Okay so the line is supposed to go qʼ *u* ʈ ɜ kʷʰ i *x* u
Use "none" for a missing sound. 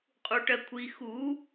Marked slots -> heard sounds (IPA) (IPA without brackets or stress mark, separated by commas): u, x